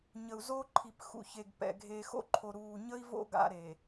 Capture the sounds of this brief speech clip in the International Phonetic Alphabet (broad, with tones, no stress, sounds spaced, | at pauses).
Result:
ɲ ə˨ u̯ z o˦ ǃʰ i˨ p x ṵ˨ ç e˨ ɡ p ɛ̰˨ ɡʱ eː˨ x o̰˦ ǃʰ o˨ ɾ uː˨ ɲ ə˦ i̯ v o̰˦ ɡ a̰˦ ɾ e˨